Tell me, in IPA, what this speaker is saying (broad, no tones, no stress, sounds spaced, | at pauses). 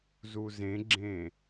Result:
z u z ẽ ɡ͡ǁ ẽː